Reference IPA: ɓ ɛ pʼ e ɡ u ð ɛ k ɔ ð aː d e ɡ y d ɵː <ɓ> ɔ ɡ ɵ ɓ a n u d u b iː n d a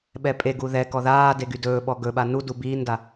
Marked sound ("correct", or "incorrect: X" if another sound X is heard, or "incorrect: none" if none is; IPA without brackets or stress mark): correct